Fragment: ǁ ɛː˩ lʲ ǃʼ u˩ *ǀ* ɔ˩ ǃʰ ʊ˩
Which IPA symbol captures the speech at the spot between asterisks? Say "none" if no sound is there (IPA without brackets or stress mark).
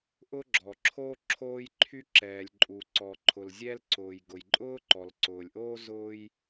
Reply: ǀ